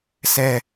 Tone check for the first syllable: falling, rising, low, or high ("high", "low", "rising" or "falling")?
falling